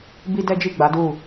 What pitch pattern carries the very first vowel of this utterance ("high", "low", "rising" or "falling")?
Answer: high